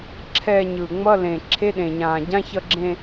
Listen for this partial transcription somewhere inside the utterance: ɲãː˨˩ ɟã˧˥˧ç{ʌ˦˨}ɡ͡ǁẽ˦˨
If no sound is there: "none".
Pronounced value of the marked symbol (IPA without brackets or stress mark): ʌ˦˨